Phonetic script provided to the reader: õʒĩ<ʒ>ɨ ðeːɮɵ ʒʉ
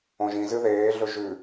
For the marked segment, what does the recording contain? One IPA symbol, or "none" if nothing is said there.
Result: z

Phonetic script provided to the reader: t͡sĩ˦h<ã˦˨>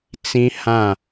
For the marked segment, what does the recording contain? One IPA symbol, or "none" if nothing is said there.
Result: ã˦˨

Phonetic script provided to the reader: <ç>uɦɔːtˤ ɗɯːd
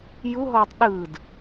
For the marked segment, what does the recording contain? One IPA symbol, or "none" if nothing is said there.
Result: j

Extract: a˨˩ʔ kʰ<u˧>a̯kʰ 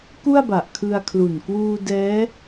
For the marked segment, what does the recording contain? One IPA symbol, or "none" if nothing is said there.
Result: ɯ˧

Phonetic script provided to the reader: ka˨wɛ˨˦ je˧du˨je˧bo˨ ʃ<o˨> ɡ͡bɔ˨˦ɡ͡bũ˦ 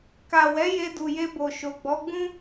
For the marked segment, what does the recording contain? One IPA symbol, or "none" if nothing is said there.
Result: o˨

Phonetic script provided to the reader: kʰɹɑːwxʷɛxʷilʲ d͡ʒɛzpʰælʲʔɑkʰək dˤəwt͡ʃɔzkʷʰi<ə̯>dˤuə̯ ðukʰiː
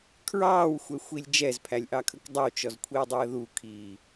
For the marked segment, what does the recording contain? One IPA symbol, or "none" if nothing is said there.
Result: ə̯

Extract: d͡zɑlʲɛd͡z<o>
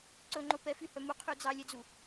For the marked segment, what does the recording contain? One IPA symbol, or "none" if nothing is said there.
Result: u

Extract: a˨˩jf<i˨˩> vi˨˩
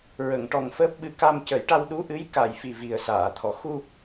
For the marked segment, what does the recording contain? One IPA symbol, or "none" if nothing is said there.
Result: i˨˩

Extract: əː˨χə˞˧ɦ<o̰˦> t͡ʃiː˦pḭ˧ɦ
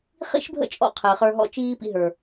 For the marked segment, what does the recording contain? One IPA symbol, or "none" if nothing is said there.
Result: ɔ̰˦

